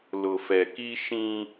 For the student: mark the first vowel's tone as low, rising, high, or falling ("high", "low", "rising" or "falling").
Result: low